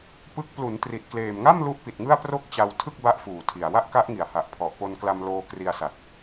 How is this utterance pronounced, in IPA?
p ɯ˦˥ k̚ p l u˩˦ n t r i˨˩ t̚ k l eː˨˩ m ŋ a˥˩ m l u˦˥ ʔ p i˨˩ t̚ ŋ ɯ˥˩ a̯ p r o˥˩ k̚ t͡ɕ a˧ w tʰ ɯ˥˩ k̚ b a˦˥ ʔ f uː˨˩ tʰ i˨˩ a̯ w a˥˩ ʔ k a˦˥ ʔ ŋ i˩˦ a̯ h a˨˩ ʔ pʰ ɔ˨˩ ʔ p o˧ n k l a˧ m l oː˧ k r i˧ a̯ s a˨˩ t̚

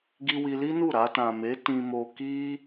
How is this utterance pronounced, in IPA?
ɡ i˧ w i˧ l i˦ n u˦˨ ɾ a˧ t ã˨ m e˨˦ t ĩ˧ m o˧ k i˦

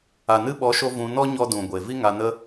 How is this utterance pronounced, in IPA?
a˨ n ɨ˧ ɓ ɔ˨˦ ʃ o˧ v ũ˧ n ɔ˦ ɲ ɔ˧ d ũ˨ ɡʷ e˨ v i˦ ŋ a˧ n ə˦

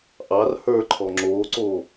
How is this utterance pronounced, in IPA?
ʔ ɑ r h ə˞ ǃʰ ɔ ŋ͡ǁ oː ǀ oː

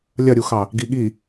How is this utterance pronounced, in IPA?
lʲ ɐ ɾʲ u x ɑ | ɡ i ɠ i

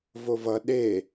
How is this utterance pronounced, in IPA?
v o v ʌ ɗ e

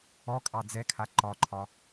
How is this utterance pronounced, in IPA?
ɔ kʼ ɑ d͡z ɛ kʰ a ǃ ɒ ǃʰ ɒ

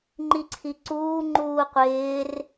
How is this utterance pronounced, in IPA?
ŋ͡ǃ i ǀʰ i ǀ uː ŋ͡ǃ uː qʷ ɪː r

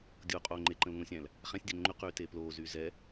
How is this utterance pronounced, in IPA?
dʲ oː qʼ oː ŋ͡ǃ e ǃ ə̃ l ŋ õ sʲ æ̃ l | χ æ̃ sʲ dʲ æ ŋ͡ǃ y q yː t eː p l oː z yː z ɛ

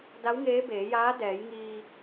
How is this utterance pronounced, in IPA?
d a˧˥ w ŋ eː˧˥ b eː˩˧ j aː˧˥ d ɛː˩˧ j ŋ iː˧

